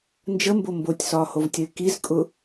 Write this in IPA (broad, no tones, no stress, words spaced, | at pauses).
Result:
nd͡ʒəmbo mbotʲsɒːhovtʲəɪ̯ kizkʼʊ